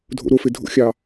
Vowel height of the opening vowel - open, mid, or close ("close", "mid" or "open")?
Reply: mid